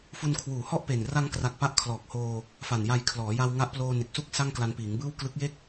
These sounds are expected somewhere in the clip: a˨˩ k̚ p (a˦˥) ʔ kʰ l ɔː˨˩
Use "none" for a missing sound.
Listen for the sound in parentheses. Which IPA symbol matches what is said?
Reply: a˦˥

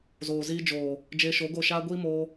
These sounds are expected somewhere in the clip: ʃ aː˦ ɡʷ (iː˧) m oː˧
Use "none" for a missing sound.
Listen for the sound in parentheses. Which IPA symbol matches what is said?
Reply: iː˦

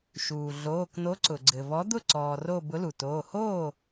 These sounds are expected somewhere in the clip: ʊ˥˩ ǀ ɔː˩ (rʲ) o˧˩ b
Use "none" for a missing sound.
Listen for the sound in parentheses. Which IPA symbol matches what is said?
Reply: r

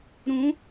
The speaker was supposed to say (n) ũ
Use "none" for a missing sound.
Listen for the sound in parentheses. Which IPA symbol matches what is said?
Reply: ɾ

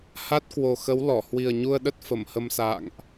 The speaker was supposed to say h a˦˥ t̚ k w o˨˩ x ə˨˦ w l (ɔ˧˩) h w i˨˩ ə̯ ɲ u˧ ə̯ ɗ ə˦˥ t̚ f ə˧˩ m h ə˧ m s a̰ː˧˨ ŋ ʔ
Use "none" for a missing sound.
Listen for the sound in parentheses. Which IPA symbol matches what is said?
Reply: ɔ˧˩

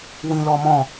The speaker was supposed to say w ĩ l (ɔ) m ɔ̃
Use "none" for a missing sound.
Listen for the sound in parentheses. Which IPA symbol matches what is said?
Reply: ɔ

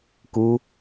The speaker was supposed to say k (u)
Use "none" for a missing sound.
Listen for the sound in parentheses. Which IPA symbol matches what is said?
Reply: u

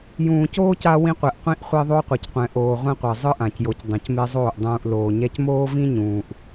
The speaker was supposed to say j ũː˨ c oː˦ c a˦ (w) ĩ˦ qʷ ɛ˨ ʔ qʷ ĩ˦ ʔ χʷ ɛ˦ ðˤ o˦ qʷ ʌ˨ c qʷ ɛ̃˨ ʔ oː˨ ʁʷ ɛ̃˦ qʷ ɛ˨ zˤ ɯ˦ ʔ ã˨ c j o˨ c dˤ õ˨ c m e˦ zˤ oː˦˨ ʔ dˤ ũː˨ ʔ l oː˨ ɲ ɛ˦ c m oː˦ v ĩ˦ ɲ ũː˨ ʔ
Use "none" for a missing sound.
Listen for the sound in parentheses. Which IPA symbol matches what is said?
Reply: w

